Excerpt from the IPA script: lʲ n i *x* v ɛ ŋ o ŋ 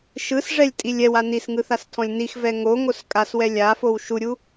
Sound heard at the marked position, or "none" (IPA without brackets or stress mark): x